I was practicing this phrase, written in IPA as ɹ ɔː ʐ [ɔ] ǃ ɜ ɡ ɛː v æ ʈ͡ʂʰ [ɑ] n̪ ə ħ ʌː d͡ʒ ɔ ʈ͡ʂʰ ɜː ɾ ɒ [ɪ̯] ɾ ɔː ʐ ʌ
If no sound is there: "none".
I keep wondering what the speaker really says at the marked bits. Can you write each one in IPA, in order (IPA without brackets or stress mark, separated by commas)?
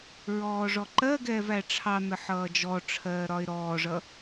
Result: ɔ, ɑ, ɪ̯